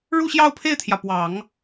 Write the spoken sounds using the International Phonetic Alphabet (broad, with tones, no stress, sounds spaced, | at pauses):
ɻ u˥˧ ɕ j ɑ˥˧ ʊ̯ pʰ e˥˩ ɪ̯ t̪ʰ j ä˩ p w ɑ˨˩˦ ŋ